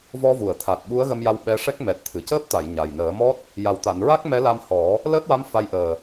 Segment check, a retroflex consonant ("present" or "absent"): present